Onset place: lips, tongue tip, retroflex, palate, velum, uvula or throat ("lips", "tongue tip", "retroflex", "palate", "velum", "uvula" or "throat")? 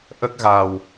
throat